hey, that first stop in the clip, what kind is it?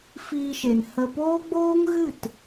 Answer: plain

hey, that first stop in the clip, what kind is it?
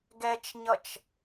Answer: plain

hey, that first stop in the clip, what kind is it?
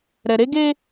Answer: plain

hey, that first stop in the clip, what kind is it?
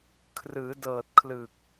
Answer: aspirated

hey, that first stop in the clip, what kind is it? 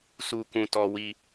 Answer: plain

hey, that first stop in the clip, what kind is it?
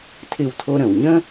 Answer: aspirated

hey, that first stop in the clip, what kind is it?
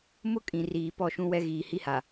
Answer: ejective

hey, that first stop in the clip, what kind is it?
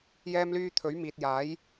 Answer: aspirated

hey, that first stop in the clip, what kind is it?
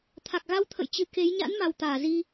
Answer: aspirated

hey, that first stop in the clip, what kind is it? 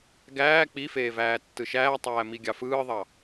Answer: plain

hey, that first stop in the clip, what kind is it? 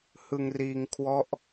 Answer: aspirated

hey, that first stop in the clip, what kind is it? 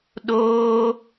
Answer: implosive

